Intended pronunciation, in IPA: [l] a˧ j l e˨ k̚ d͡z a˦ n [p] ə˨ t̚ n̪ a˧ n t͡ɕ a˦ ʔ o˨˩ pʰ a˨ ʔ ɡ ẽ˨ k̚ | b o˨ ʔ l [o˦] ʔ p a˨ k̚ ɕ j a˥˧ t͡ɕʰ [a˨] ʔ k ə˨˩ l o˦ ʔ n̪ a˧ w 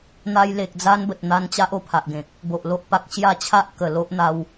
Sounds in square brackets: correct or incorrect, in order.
incorrect: n̪, incorrect: b, correct, incorrect: a˦

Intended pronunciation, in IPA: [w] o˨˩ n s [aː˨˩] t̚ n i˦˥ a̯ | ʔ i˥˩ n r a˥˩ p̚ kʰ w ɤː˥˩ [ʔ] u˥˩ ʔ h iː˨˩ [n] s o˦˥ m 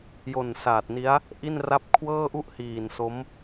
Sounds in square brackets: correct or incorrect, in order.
incorrect: j, correct, correct, correct

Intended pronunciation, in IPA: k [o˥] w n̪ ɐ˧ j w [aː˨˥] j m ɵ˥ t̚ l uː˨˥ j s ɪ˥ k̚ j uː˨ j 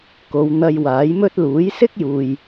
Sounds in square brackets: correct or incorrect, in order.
incorrect: o˨˧, correct

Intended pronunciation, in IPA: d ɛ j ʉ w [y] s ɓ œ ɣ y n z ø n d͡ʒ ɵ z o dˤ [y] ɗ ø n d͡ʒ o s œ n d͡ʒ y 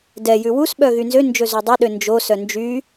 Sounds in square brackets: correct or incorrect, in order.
incorrect: u, incorrect: ø

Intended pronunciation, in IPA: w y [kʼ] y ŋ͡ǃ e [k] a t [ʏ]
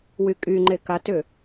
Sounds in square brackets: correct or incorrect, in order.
correct, correct, correct

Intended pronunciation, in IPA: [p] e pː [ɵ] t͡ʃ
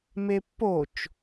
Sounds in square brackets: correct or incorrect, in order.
incorrect: m, incorrect: o

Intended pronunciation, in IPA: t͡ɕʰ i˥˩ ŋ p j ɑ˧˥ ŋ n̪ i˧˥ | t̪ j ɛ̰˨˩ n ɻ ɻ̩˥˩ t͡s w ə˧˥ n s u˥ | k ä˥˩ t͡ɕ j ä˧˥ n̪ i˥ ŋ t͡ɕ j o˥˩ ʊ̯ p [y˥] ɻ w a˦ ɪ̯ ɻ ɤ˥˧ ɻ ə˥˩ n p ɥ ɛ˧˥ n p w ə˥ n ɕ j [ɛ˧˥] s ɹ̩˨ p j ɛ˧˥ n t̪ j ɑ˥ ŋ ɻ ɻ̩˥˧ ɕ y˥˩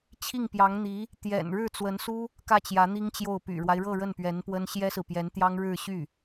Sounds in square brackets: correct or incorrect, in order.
incorrect: y̰˨˩, incorrect: ɛ˥

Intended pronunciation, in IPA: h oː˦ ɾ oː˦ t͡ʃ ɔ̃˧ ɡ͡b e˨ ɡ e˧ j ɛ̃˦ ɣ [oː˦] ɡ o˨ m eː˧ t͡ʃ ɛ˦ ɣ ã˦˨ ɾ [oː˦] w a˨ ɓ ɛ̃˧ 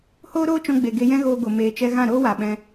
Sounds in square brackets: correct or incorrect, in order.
incorrect: oː˧, correct

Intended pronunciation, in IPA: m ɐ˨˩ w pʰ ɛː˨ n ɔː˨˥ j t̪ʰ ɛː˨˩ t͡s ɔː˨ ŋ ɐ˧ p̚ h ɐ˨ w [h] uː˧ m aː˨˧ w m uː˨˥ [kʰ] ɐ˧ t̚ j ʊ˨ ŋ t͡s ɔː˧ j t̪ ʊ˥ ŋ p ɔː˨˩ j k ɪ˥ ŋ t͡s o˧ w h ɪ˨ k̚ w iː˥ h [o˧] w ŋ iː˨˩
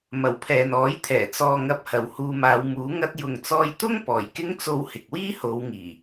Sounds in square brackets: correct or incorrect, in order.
correct, incorrect: ŋ, incorrect: o˨˧

